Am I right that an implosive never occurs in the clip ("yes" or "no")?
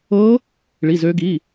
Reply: yes